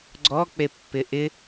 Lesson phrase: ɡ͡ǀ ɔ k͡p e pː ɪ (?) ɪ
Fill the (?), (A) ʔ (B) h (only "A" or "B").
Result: A